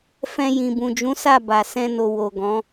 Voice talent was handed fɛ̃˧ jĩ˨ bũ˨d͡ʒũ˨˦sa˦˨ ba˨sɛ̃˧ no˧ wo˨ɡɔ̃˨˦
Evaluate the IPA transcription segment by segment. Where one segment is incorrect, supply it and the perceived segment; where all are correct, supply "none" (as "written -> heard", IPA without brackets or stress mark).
none